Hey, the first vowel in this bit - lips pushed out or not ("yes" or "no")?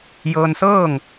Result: no